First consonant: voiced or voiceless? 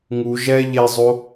voiced